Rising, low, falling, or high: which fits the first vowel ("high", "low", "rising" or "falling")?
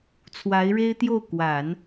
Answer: rising